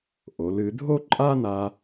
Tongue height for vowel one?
mid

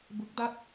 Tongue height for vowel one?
high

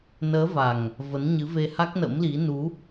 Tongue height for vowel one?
mid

